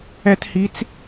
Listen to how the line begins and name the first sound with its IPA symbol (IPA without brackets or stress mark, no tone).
ɛ